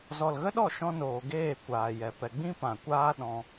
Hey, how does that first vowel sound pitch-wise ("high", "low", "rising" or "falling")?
low